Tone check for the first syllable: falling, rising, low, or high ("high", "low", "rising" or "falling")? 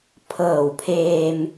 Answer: low